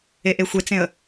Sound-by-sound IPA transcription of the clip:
e ʔ e xʷ e t͡s ẽ ə̯

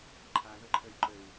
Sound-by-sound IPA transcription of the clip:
ǃʰ a ð ɤ ǃʰ ə y̯ ǃ ə u̯

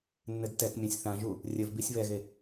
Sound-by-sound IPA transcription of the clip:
nː ɘ d t ɛ k mʲ ɛ̃ sʲ θ ã ʒ u | rʲ ɘ v b i sʲ β ɛ ɣ e

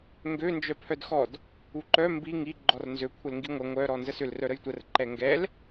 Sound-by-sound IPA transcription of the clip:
ŋ ɡ ø n d͡ʒ œ pʰ œ d x ɔ d | u ǃ œ m b i ŋ i ɡ͡ǃ ɔ r n z ø kʷʰ ə l ŋ ɡ i ŋʷ ɐ ŋʷ œ ɾ ɔ n z ə s ʏ l r œ ɾ ə j tʷ ə r ǃ ɛ ŋ ɡ ɛ l

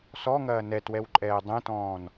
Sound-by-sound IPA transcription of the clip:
s ɔ ŋ ɐː n ɛ t w ɛ w ǃʼ ɛː dˤ ɛ̃ t ɔ̃ː n

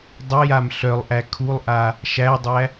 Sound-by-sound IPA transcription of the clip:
dˤ ə j a m ɬ œ lˠ ʔ æ kʰ u lˠ ʔ a | ʃ æ dˤ æ

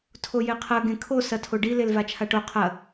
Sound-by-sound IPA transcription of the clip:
tʰ o j e qʰ ɐ ɡ ẽ kʰ o s ɐ tʰ o ɖ i l e l v a t͡ʃʰ a ʈ o qʰ ɐ

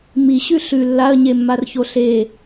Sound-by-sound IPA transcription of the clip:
m i ɕ ʉ ɬ ʉ lː a ə̯ ɲ e mː a r ç o ɬ e

